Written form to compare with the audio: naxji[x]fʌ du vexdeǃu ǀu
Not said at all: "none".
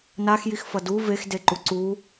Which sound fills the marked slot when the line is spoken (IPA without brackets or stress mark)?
x